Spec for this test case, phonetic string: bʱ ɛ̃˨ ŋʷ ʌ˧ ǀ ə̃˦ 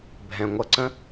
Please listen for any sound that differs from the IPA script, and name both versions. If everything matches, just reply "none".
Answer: none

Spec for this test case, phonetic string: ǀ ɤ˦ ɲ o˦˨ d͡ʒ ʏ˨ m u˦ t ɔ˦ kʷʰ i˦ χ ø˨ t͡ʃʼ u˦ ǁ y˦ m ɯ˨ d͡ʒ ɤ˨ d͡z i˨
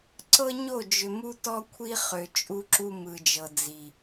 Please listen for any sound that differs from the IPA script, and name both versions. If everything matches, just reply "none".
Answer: y˦ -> u˦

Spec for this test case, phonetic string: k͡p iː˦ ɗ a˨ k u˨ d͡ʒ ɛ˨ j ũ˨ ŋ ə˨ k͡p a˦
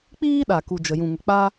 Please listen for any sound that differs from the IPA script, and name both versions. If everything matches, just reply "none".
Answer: ɛ˨ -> ə˨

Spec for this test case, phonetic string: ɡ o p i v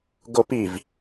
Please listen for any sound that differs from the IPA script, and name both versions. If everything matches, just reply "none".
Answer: none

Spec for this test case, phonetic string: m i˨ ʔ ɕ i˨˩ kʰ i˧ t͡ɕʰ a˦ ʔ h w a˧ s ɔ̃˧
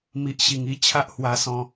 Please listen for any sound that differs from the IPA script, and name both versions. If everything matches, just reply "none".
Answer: kʰ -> ŋ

